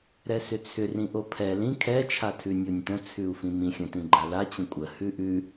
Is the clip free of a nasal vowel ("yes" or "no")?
no